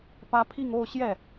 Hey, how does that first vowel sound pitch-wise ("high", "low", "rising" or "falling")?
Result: high